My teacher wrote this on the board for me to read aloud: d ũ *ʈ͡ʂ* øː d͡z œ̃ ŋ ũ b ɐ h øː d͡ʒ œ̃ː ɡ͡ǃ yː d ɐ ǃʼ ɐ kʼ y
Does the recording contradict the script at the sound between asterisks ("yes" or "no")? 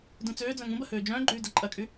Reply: yes